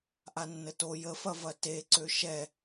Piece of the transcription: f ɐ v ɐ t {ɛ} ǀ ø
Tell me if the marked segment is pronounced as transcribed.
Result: no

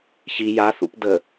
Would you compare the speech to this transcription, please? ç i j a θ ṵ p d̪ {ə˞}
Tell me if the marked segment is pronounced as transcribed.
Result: no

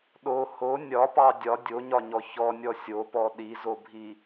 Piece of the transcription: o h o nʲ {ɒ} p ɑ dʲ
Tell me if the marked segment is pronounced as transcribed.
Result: yes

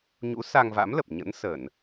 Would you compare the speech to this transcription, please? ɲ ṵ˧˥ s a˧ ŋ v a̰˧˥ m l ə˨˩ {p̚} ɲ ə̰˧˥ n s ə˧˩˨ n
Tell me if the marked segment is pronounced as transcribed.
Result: yes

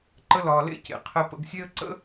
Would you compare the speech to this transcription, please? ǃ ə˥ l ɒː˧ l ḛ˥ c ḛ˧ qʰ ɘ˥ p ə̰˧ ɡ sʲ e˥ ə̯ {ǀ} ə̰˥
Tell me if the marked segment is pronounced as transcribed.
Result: yes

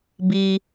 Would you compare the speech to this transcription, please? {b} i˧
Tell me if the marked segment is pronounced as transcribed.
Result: yes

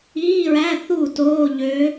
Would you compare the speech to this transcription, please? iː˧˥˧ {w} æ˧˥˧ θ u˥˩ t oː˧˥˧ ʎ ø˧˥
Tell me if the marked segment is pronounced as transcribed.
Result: no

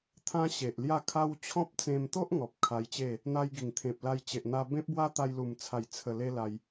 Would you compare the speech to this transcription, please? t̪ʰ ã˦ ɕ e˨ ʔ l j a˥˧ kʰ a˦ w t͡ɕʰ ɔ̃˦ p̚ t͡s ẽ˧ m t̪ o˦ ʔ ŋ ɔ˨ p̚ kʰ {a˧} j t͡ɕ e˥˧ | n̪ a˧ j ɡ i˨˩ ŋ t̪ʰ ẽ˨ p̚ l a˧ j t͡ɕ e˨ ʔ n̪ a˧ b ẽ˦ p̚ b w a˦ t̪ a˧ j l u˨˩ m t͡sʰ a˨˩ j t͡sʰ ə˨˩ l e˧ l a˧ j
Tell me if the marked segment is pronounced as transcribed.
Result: yes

